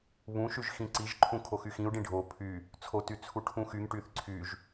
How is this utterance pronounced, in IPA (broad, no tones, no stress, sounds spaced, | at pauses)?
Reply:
β ũ ʃ y ʒ x ĩ ǀ i ʒ ǃʰ ũ kʰ o x y x ĩ u̯ ɖ ĩ ɖʱ o pʰ y | t͡sʰ o t y t͡sʰ u ʈʰ ũ x y ŋ ʈ y θ ǀʰ y ʒ